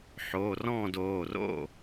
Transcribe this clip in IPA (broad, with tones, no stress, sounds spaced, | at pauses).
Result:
ħ oː˩˧˩ r ɔ̃ː˥˨ d oː˩˧˩ r o̰˥˨